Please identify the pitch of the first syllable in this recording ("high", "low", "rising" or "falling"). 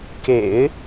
low